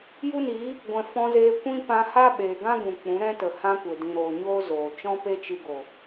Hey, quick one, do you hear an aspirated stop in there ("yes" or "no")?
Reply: no